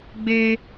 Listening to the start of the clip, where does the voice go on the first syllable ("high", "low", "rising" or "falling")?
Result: high